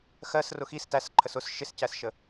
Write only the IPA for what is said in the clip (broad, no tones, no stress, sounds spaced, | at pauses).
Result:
x ɜ s r ʊ x i s t æ s ǃʰ ə s ʊ s ʃ ɪ s c æ s ʃ ə